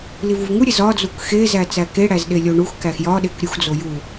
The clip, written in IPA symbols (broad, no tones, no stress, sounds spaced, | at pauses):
l i v u v ŋ u ɾʲ e z ɒ d͡z u k x e z æ t͡s æ k e ɽ æ z ɗ e lʲ o ɳ u x k æ x j ɒ ɗ e k ɾʲ u x d͡z o j u